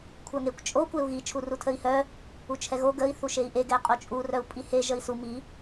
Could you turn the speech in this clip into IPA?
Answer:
kʷʰ œ ŋ e kʷ t͡ʃʼ o kʷ e u̯ ɣ i t͡ʃʰ u r u tʰ ə i̯ h œ | u t͡ʃʰ ɛ ɣ o ɡ ə i̯ θ u ʃ e i̯ ʔ e ɡ ɛ qʼ o t͡ʃʼ u r œ u̯ pʼ i h e ʒ ə i̯ s u m i

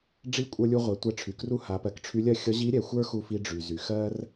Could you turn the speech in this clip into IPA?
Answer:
ɖ͡ʐ i˧˥ kʷʼ ə˞˧ lʲ u˧ ʁʷ ɛ˩˧ tʷ ɛ˧ ʈ͡ʂʰ y˩ k r u˥ h a˩˧ p ɜ˩˧ k ʈ͡ʂʰ y˧˥ lʲ ɜ˥ xʲ ʌ˧˥ ʑ i˧˥ ɾʲ ɛ˩˧ xʷ ə˞˥ x u˧ f i˧ ɖ͡ʐ y˩ z y˩ x ɜ˥ r

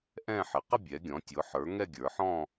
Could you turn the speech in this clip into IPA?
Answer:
ʔ ɛ̃˥˧ ħ ɪ˩˧ q ɪ˥˧ bʲ ɛ˩˧ ɡʲ ɔ̃˩˧ tʲ ʊ˩˧ ħ ə˞˩˧ ŋ ɛ˥˧ ɡʲ ə˞˩˧ ħ ɔ̃˥˧

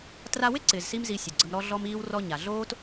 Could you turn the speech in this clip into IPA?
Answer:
t r a˧ w ɪ˦ ǀ ɪː˨ z s i˧ m z i˧ sʲ o˨ ɡ͡ǀ ə˧ m ɾ ɔ˧ ɮ ɔ˧ m iː˧ w r ɔ˧ ɲ a˨ ɮ oː˦ t

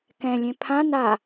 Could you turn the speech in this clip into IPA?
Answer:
k ɛ̃ lʲ ẽ pʰ ã n a

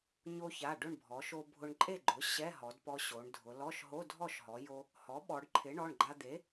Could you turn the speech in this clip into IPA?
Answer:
ɲ o˧ ç a˩˧˩ ɖ ʊ˥˨ ɳ bʱ ɔ˩˧ ʃ o˧ bʱ ʊ˧ ɳ ǃʼ e˥˨ ɡ͡ǃ ʊ˩˥ ɕ ɛ˧˥˧ ɦ ɔ˩˧ d p ɔ˧ ɕ o˩˧ ɳ dʱ ʊ˩˧ l ɔ˧˥˧ ʃ ɦ o˧˥˧ dʱ ɔ˥˨ ʃ ɦ ɔ˩˧ j o˧ | h ɔ˩˥ ɓ ɔ˩˧ ɖ ǃʰ ɪ˩˥ ɳ ɔ˩˧˩ ɳ ɡ͡ǃ a˧ d̪ e˩˥

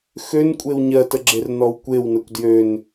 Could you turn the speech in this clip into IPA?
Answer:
x ø n kʷʼ e w ɲ ɜ t ə ɡ͡ǁ e r n ɔ w kʷ e w n ə kʷ d j ø n

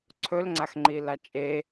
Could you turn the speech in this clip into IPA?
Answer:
ǀʰ ɵ l ŋ͡ǀ a x ŋ͡ǃ i l a t͡ʃʼ e

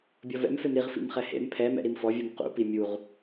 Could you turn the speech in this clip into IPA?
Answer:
bʲ ɔ v ɛ̰ m f e m ɾ i ʁ f ḭ m χ ɛ h ḛ m pʰ ɛ m ɛ̰ ɾ i m f ɔ vʲ u m q ṵ p i mʲ u ʁ

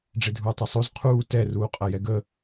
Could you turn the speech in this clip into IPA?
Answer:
ɖ͡ʐ e dʱ uː tˤ ɛ sˤ o z qʰ uː t ɛ r uː qʼ ɐ j ɛ ɡ ə

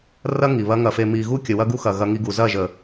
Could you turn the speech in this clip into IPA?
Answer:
r ɐ˦ ŋ i˨ β ɐ˦ ŋ ɐ˧ f e˧ m i˨ ɣ u˦ kʲ ə˨ w ɐ˦ ɡ u˦ x ɐ˨ ɣ ɐ˧ ŋ i˧ ɡ u˨ z ɐ˦˨ ʒ ə˨

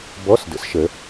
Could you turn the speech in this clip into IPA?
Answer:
b ɔ˧˥˧ s d ə̰˨˦ s ʃ ə˨˦

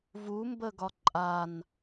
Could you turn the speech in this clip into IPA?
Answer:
v u m b ə ɡ ɒ ǃʼ a n

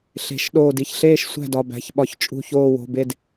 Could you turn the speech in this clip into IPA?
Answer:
ɬ e̤˨˩˦ ʃ ɗ oː˧˩ d i˩˧˩ ç ɬ eː˥˩ ʃ sʷ æ̤˥˩ d ɒ˩˧˩ b æ̤˩˧˩ ç ɓ ɒ˨˩˦ ç t͡ʃʼ ṳ˧˩ ç oː˧˩ w o̤˩˧˩ b e˧˩ d

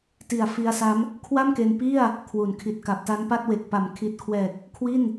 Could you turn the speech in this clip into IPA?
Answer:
t i˨˩ a̯ f i˧ a̯ s a˦˥ m | kʰ w a˥˩ m k e˧ n p i˥˩ a̯ | kʰ w u˩˦ n kʰ i˨˩ t̚ k a˨˩ p̚ t a˦˥ n p a˥˩ t̚ w e˨˩ k̚ p a˩˦ m kʰ i˨˩ t̚ kʰ w ɛː˨˩ k̚ | kʰ w i˥˩ n

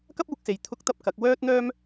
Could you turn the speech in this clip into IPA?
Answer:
k ɐ˥ p̚ uː˧ k̚ s e˨ j t̪ʰ ʊ˥ k̚ t̪ ɐ˥ p̚ k ɐ˨˥ k̚ w œː˥ t̚ n̪ œː˥ m

